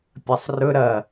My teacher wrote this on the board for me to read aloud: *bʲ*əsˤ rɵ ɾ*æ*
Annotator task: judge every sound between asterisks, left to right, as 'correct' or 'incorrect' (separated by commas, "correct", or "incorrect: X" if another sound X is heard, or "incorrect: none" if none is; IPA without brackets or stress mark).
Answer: incorrect: pʲ, incorrect: ɐ